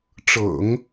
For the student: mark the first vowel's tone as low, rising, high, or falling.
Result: low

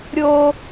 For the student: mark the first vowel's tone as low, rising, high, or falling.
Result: high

